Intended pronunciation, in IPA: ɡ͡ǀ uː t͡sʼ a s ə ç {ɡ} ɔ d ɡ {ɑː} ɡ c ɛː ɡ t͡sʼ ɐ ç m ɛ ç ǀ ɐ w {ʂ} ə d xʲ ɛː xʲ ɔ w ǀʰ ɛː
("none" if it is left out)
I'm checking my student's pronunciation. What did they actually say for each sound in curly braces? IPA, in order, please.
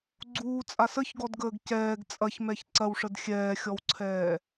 ɡ, əː, ʂ

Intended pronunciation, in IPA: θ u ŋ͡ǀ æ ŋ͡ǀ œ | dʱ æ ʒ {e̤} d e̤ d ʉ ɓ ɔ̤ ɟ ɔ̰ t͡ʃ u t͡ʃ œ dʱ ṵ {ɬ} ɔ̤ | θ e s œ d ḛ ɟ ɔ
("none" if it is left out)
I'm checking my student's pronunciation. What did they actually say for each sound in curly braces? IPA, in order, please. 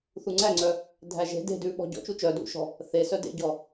e̤, ʃ

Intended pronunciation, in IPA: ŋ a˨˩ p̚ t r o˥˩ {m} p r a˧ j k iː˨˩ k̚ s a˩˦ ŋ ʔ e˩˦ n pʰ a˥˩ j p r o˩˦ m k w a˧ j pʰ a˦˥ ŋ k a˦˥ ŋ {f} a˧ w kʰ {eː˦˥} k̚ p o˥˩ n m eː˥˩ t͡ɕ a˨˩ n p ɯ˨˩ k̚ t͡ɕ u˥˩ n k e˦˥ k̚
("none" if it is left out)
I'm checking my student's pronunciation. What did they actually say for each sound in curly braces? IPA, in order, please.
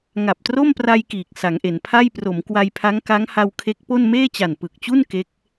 m, h, e˦˥

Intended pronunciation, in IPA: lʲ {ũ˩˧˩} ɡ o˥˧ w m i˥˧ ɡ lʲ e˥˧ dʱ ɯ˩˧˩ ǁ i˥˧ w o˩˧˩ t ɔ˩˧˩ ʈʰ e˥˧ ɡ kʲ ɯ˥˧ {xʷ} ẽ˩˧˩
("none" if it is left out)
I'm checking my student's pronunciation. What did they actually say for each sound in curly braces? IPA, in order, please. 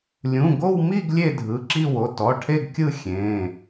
ũ˩˧˩, xʲ

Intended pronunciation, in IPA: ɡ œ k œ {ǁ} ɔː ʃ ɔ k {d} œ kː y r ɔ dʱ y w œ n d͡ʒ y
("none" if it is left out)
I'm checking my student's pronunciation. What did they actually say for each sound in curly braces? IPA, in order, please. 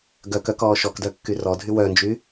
k, d

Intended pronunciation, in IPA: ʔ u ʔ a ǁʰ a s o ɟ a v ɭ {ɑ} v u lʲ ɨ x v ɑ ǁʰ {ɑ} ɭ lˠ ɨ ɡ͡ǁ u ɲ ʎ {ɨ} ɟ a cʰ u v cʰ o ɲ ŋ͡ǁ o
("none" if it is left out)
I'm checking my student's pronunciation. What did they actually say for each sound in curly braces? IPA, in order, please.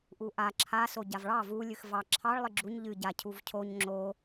ɑ, ɑ, ɨ

